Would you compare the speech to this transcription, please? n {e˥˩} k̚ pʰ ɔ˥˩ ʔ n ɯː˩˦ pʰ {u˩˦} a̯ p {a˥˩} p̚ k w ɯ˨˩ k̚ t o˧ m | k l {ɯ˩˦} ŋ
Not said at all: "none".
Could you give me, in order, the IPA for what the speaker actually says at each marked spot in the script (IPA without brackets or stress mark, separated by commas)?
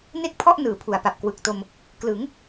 e˥˩, u˩˦, a˨˩, ɯ˩˦